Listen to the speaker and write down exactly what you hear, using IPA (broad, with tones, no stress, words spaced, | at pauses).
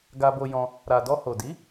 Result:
ɡa˧bo˧jɔ̃˧ | ɾa˨dɔ˧ ho˨di˨˦